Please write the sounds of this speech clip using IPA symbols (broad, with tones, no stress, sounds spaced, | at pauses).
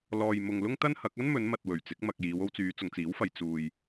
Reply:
l ɔː˨ j m ʊ˨ ŋ l ʊ˥ ŋ t̪ ɐ˥ n h ɐ˨˥ k̚ ɐ˥ n m ɵ˨˧ n m ɐ˨ t̚ w ɵ˨˩ ɥ t͡s ɪ˨˥ k̚ m ɐ˨ k̚ j iː˨˧ w o˧ w t͡s yː˨˧ t͡s ʊ˨ ŋ t͡s iː˨˥ w f ɐ˨ j t͡s uː˨ j